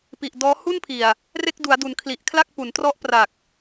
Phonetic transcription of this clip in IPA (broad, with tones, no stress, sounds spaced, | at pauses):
p i˨˩ ʔ d ɔː˦˥ h u˥˩ n pʰ i˨˩ a̯ | r e˥˩ k̚ d u˩˦ a̯ d u˩˦ n kʰ l i˨˩ ʔ kʰ l a˥˩ k̚ p u˩˦ n t r ɔ˦˥ ʔ p r a˨˩ k̚